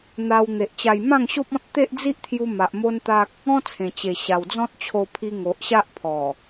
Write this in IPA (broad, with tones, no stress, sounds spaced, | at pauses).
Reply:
n̪ a˧ w n̪ e˨ ʔ t͡ɕ a˧ j m ã˥˧ ŋ ɕ o˦ p̚ ɔ̃˦ t̚ t̪ e˦ ʔ d͡z i˦ ʔ t̪ʰ j u˧ m a˨ ʔ m o˦ n t̪ a˦ k̚ | ɔ̃˦ t͡sʰ ẽ˨˩ t͡ɕ e˨˩ ɕ a˨˩ w d͡z ɔ̃˦ t̚ t͡ɕʰ o˧ pʰ i˧ ŋ o˨ ʔ ɕ a˦ ʔ pʰ ɔ˨˩